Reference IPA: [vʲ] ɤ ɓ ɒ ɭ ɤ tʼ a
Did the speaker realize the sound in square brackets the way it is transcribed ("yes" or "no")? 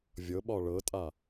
yes